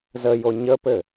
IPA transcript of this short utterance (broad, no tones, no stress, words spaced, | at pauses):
zəjo ɲəpɘ